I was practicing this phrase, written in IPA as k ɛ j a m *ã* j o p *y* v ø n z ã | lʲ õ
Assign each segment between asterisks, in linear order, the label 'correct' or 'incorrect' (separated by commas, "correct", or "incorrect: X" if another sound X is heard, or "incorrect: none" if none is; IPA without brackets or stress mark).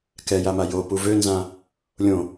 incorrect: a, incorrect: u